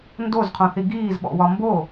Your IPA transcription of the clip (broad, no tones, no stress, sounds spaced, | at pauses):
n d o z qʰ õ θ i ɡ iː z ɓ ɔ̰ w ɒ m b o